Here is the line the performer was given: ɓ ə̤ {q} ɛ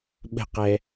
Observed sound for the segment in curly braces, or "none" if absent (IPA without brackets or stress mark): q